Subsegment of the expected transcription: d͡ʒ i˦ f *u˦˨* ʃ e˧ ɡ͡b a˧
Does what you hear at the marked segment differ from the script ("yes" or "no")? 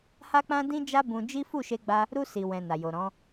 no